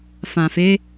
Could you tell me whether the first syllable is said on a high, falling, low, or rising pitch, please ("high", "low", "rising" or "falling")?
low